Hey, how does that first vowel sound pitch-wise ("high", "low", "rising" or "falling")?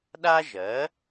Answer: high